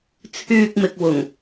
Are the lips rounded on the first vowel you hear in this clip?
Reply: yes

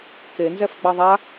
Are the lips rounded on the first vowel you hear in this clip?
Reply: no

